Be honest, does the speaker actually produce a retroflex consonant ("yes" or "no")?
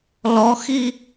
no